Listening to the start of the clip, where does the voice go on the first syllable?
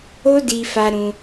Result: high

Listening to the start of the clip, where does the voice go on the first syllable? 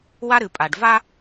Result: high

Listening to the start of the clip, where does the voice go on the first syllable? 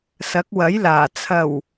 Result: rising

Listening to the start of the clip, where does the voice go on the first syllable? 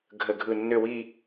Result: falling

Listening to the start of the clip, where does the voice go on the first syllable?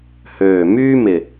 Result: low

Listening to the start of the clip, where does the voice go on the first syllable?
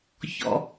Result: low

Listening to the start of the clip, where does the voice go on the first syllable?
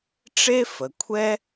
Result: high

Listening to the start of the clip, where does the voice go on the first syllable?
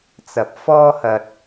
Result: low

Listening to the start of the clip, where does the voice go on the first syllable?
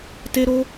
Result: high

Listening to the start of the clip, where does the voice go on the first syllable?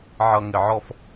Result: low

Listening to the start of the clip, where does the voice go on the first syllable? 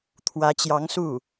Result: rising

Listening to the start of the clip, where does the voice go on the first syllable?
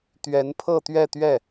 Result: rising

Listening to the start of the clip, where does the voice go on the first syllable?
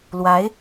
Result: rising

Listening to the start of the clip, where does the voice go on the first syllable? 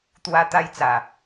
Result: high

